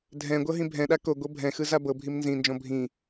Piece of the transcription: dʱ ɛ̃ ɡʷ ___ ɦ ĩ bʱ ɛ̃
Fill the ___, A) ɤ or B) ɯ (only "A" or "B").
A